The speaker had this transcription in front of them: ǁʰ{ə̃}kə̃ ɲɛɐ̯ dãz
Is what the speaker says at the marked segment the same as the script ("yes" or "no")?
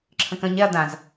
yes